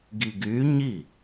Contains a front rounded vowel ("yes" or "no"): yes